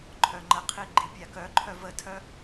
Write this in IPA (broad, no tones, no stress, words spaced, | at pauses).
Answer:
ǃʰœŋ͡ǃəqʰi ɡ͡ǃipʲakœǃʰœv ətʰœ